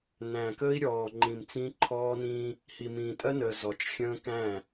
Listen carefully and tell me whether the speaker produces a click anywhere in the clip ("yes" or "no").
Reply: yes